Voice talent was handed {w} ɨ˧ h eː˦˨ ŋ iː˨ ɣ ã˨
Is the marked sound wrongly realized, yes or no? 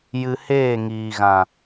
yes